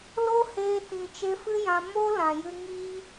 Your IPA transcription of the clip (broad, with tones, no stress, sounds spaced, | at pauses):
l o˦ h eː˧ t ĩ˨ t͡ʃ e˧ f ɨ˦ j ã˧ m o˦ l ã˨ j ɨ˧ ŋ iː˦